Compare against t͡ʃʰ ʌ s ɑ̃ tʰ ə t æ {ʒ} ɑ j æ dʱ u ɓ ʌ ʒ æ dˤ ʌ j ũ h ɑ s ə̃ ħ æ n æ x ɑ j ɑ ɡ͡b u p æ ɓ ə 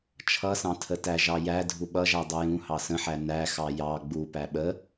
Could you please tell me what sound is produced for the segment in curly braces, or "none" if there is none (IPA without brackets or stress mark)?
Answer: ʒ